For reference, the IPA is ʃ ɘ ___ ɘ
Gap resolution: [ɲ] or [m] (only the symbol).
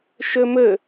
m